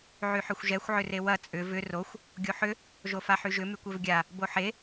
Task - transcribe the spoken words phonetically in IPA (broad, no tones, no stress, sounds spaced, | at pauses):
ʕ y ħ ø xʷ ʒ ɛ xʷ ʕ ʏ r e w ɐ t͡sʼ ʏ v ʏ r o xʷ | ɡʲ o ħ ʏ | ʒ o f a ħ y ʒ ʏ m y kʷ ø v ɡʲ a | b o ħ e